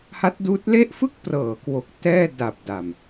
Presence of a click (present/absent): absent